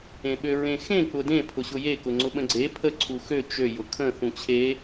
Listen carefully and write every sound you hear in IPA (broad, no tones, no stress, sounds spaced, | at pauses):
ẽ ɓ ø ɹ ẽ x ẽ k͡p ʊ d ẽ pʰ ʊ ɕ ʊ j e k ʊ ŋ͡ǀ ʊ ɓ ə̃ ɡ͡ǀ e pʰ ə ǀʰ u x ø t͡ʃ ø j ʊ kʰ ə̃ θ ũ t͡ɕʰ e